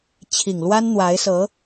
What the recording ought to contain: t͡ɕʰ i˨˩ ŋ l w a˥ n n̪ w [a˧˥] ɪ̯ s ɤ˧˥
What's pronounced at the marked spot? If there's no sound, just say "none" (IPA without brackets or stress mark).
a˧˥